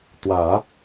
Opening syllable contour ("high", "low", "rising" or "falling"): low